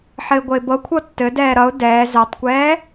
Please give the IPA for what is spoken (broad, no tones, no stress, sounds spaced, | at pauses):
ħ ɘ ɪ̯ ɡʷ ə ɪ̯ b ɤ kʷʰ ɤ tː ɘ d ɛː ɾ ʌ ʊ̯ d ɛː z ɛ tˤ kʷ ɛː